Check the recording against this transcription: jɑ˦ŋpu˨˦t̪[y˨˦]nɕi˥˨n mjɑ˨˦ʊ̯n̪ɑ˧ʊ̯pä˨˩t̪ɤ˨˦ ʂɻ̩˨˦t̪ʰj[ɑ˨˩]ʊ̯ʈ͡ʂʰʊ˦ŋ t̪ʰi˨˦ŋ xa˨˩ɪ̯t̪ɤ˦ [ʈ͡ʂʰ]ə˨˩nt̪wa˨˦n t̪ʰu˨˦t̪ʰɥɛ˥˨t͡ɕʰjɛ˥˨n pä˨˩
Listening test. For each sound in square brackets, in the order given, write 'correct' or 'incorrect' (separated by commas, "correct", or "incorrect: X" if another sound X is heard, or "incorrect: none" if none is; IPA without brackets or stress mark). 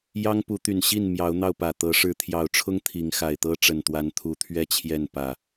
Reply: incorrect: y˨˩, correct, incorrect: ʈ͡ʂ